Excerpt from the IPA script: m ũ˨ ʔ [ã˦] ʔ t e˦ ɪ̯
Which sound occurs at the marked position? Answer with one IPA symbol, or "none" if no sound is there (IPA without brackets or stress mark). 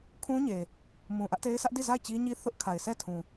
ä˦